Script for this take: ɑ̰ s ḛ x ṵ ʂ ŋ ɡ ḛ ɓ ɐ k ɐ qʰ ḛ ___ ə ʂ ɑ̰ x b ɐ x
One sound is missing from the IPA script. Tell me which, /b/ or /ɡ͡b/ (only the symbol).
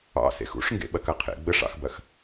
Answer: ɡ͡b